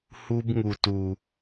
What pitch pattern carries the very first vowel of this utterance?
high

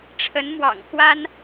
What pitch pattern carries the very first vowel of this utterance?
rising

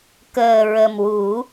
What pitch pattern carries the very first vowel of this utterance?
low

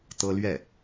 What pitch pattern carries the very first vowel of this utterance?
high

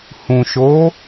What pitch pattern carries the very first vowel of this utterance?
low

